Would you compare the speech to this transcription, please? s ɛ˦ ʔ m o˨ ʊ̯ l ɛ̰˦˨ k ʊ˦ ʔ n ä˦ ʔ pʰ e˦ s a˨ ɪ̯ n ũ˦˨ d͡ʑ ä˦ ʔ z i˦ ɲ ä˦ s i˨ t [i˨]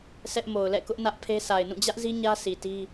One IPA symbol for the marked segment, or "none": i˦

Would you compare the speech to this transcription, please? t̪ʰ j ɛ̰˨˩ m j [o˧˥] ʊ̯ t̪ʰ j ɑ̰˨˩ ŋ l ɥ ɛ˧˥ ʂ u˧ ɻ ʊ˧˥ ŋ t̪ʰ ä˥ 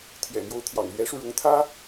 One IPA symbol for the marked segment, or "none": o˧˥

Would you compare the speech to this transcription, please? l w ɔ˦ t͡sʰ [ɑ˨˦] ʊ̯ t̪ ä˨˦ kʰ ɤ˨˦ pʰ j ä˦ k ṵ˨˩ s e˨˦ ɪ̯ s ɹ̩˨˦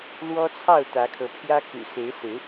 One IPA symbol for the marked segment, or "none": ɑ˥˨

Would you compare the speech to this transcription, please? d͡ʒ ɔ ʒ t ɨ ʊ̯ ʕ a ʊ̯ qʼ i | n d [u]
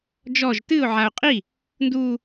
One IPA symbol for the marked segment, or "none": u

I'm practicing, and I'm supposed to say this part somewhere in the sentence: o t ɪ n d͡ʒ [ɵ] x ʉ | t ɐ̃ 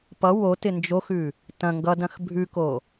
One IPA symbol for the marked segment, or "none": o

